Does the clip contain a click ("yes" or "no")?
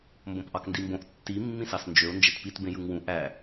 no